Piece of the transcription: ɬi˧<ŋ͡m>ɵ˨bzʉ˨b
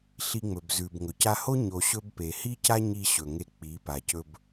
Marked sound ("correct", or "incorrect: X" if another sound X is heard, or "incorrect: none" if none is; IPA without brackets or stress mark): correct